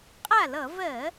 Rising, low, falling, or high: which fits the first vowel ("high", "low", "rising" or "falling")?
falling